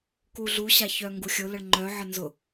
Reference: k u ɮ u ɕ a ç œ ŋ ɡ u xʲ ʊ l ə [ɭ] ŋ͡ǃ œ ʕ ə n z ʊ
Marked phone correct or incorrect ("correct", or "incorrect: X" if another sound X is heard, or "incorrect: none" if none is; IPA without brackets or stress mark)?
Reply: correct